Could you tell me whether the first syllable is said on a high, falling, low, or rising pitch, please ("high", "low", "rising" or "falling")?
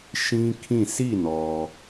high